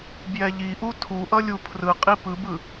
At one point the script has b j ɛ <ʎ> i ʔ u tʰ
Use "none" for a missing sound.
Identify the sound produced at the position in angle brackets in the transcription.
ʎ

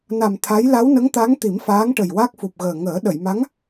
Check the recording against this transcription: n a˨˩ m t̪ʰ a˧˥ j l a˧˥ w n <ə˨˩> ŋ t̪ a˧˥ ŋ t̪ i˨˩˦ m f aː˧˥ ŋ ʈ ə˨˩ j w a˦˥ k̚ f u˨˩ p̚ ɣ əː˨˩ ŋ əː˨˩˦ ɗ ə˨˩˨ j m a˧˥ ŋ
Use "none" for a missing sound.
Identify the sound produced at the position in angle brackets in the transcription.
ə˧˥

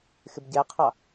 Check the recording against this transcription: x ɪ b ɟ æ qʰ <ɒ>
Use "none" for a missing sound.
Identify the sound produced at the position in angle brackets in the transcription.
ɑ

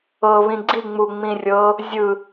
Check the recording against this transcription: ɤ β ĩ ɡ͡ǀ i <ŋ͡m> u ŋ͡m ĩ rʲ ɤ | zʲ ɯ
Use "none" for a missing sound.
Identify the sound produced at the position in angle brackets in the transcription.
ŋ͡m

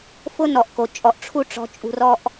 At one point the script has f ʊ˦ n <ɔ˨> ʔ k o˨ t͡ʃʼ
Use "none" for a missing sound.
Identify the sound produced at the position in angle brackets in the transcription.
ɔ˨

